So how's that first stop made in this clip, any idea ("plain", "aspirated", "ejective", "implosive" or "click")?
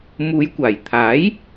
plain